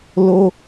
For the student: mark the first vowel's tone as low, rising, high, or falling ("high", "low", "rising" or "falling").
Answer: high